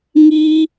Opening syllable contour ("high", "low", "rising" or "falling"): high